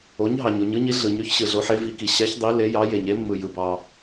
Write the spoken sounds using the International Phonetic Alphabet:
o˩˧ɲ ɦɑ˩ɲo˩ɲɯ˩˧ɲi˩˧ ɮɯ˩ɲy˩˧ç ɕɯ˩ɮo˩˧ħe˩˧ vi˩˧ki˩ ɕæ˩˧ç dˤi˩˧ le˩˧jɑ˩˧ je˩ɲe˩˧mːɯ˩ jɯ˩bɑ˩

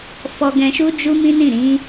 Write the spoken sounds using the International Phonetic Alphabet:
fɔ˧ɡɛ̃˧ʃu˦ d͡ʒu˦ mĩ˦nĩ˦˨ɾĩ˨˦

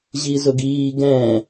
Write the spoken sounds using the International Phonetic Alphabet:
ʑizʊɡiː ɡɛ̃

